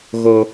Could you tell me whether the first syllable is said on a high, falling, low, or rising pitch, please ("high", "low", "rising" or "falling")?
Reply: low